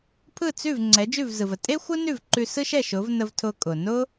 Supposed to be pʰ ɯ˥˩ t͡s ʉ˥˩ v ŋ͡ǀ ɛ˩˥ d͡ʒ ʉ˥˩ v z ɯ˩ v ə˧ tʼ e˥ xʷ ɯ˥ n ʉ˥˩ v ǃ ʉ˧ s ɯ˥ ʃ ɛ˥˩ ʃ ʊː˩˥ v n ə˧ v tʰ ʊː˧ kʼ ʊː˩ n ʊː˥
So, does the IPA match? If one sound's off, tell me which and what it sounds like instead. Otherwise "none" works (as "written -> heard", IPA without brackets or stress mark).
none